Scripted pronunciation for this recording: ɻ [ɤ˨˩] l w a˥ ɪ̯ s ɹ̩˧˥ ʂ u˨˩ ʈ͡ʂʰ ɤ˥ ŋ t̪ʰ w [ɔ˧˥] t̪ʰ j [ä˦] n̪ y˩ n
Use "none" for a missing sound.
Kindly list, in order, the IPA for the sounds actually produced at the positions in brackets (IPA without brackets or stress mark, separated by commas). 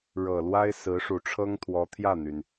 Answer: ɤ˨˩, ɔ˧˥, ä˥˩